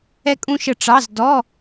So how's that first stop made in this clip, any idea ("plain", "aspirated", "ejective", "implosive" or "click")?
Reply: ejective